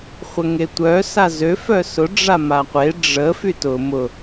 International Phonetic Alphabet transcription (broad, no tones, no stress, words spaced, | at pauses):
χʷəŋetʷœ sazø fœsʊ ɖ͡ʐamaqʷe ɖ͡ʐə fytʊ mʊ